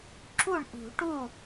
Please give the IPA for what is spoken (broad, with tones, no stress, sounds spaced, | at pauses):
ǁ u˥˩ ɳ ʔ ṳ˨˩˦ ʈ u˥˩